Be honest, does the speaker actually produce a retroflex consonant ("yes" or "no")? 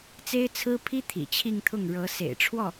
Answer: yes